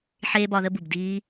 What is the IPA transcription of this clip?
ħ eː˦ b ɒ˧ ð ə˦ b u˨ b d iː˧

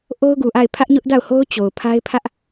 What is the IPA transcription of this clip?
ʔ o˦ ʊ̯ ɡ u˨ ʔ a˦˨ ɪ̯ pʰ ä˦ ʔ ɲ ʊ˦ ʔ d a˦˨ ʊ̯ h o˦ ʊ̯ t͡ɕ o˨ ʊ̯ pʰ a˦ ɪ̯ pʰ ä˦ ʔ

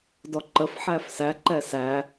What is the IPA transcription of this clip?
d ɔ ǃ ə f ħ æ f s æ ǃ ɛ s æ

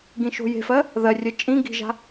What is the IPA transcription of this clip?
ɡ ĩ ʃ o̤ j e̤ f ɜ | ð ɜ rʲ ɜ t͡ʃʼ ĩ ɡ i̤ ʒ a̤

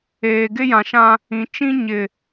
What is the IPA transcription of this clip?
eː˨ ɡ ɪ˦ j ã˨ ʃ ã˦ | ĩ˨ t͡ʃ ĩ˦ ɲ ɪ˨

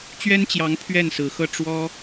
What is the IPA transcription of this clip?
t͡ɕ ɥ ɛ˥ n t͡ɕ j ɑ˧˥ ŋ pʰ ɥ ɛ˥˩ n s ɹ̩˧˥ x ɤ˥˩ ʈ͡ʂ w ɔ˥

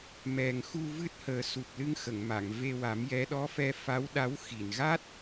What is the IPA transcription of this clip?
m ɛ˨˩ ŋ x u˧ v ɨ˦˥ t̚ h əː˨˩ s u˨˩ p̚ l ɨ˧ ŋ x ə˨˩˨ ŋ m a˨˩˨ ŋ v e˧ w a˨˩˦ m j ɛ˧˥ ɗ ɔ˧˥ f ɛ˧ f a˧˥ w ɗ a˧˥ w x i˨˩˨ n ɣ a˦˥ t̚

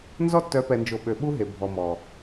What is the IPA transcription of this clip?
n z ɔ˦ tː œ˨˦ p ɛ˨ n d͡ʒ o˨ ɓ ø˨ ɓ u˦ ɦ e˨ bʱ ɔ˨ m ɔ˨

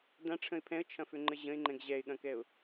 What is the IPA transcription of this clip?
d ã ʈ͡ʂʰ ə̃ ɪ̯ pʰ ɛ̃ ə̯ t͡ʃʰ ɐ̃ f ʏ ŋ͡ǃ ə ʑ ə̃ ɪ̯ ŋ͡ǃ ɛ̃ ɡ ʑ ɛ ɪ̯ ɠ ɐ̃ k ɛ ʊ̯

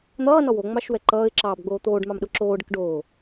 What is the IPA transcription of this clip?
n̪ ʌː n ɔ w o ŋ͡m ɑ ʃ w ɛ ǃ ʌː ɪ̯ ǁ ɑː b ɡ͡b oː t̪ oː ɖ m ɑ m ɗ ʊ ǁ oː ɖ ə k ɖ oː

